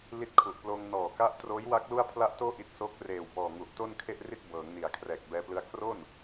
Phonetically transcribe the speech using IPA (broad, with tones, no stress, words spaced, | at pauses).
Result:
li˦˥t̚kʰu˨˩ʔploː˧ŋ nɔː˨˩ka˦˥ʔtroː˦˥jwa˦˥k̚ lu˥˩a̯pʰla˥˩ʔtoː˥˩ ʔi˦˥t̚so˦˥k̚ reː˨˩wbɔː˨˩ ŋu˨˩ʔ to˥˩nkʰe˥˩ʔri˥˩t̚ bɤː˩˦ŋni˩˦a̯ kʰrɛː˨˩k̚bɛː˧plɯ˦˥a̯ kro˥˩n